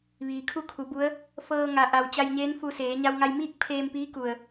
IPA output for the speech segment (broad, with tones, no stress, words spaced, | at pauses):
ʋiː˩kʰu˥˨kʰu˩˧bu˧˥ə̯ | fɤː˧ŋa˩ʔa˩w t͡ɕa˧jɲeː˧˥n fu˧seː˩˧ ɲa˧wŋa˧jmiː˥˨k̚ pʰeː˧mpiː˧˥ku˩ə̯